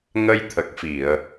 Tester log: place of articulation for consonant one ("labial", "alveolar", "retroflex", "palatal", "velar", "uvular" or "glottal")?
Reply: velar